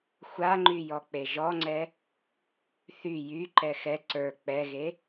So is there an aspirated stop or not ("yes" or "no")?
no